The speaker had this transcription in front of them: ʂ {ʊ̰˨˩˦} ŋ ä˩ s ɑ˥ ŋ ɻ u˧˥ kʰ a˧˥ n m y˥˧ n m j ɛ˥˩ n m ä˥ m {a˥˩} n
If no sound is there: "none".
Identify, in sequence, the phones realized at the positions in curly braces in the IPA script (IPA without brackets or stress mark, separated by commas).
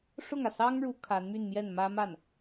ʊ˥˩, a˥˩